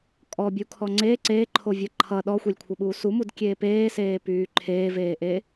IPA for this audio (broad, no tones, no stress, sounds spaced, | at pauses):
kʼ ɔ bʲ u kʰ ɔ ŋ͡ǀ e ǀ eː ǃʰ o vʲ ʌ ǃʰ ʌ ɗ ɔ xʷ e lʲ kʷʰ ʌ ɓ uː s u m u d kʲ eː p eː s eː p yː ǃʰ eː v eː ʔ e